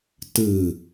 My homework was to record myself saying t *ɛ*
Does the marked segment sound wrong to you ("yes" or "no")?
yes